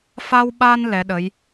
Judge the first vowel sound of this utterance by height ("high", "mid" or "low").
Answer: low